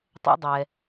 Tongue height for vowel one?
mid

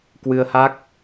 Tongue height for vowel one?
high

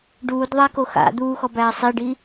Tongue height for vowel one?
high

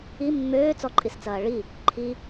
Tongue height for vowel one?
high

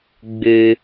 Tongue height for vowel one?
high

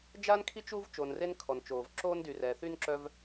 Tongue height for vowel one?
low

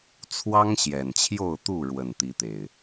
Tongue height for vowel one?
low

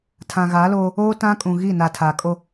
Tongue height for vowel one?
low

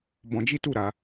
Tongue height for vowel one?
mid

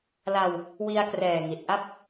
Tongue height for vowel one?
low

